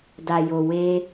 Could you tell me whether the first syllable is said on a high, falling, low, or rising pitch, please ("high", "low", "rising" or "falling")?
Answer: low